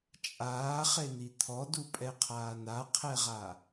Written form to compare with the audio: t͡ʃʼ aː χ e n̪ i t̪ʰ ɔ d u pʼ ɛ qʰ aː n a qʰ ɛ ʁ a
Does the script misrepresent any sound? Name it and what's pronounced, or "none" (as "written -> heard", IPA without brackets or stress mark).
none